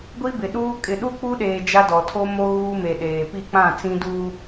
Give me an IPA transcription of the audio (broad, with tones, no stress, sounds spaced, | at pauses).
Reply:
ɡʷ i˦ b ɪ˨ ɗ uː˦ kʼ ɪ˨ ɗ u˦ k͡p u˦ ɗ eː˨ d͡ʒ a˦ d ɔ˨ tʰ o˦ m o˦ ɣ uː˦ m e˨ ɗ eː˨ p i˦˨ k͡p ã˦˨ t͡s ĩ˦ d uː˦